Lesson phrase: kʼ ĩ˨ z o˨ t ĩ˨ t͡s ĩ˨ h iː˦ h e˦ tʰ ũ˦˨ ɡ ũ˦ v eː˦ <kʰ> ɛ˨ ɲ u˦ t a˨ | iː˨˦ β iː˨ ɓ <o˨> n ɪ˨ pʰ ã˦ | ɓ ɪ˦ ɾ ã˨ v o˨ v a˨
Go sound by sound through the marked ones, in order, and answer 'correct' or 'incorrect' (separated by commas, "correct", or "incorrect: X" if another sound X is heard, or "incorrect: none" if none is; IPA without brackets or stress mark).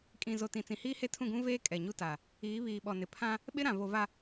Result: incorrect: kʼ, incorrect: ɔ˨